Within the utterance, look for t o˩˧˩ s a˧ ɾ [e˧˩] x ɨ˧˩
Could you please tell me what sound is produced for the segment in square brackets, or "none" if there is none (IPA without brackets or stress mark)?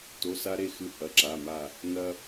e˧˩